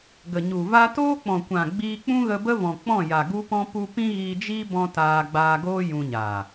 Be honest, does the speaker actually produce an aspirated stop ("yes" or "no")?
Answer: no